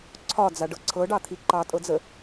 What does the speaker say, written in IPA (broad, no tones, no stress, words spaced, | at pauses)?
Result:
ǀʰɒd͡zaɖɤ ǀʰɤɖɑt̪ʰi ǃɑtʼɤd͡zə